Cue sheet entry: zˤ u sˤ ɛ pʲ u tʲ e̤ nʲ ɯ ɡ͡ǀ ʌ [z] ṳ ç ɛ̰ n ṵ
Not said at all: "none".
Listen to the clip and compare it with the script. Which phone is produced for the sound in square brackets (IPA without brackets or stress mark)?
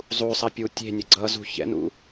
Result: z